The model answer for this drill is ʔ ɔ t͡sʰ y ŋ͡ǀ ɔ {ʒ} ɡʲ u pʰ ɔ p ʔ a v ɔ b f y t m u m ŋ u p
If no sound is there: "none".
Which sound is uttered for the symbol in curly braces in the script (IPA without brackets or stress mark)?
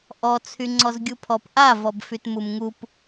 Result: z